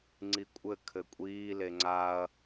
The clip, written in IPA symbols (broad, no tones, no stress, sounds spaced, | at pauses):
ŋ͡ǀ i kʷʼ ɘ kʰ ɘ kʷʼ iː l e ŋ͡ǀ a ɐ̯